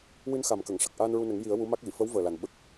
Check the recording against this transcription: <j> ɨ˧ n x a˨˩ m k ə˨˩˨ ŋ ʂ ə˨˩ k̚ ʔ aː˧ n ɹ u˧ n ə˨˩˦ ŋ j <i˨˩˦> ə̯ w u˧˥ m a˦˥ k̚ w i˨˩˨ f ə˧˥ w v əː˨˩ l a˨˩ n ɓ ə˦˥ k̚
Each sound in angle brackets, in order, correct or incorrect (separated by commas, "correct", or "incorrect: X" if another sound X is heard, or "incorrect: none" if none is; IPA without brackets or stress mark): incorrect: w, correct